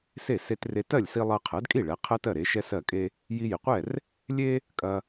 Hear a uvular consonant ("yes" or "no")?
yes